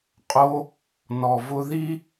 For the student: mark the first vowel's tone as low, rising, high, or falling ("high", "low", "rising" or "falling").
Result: high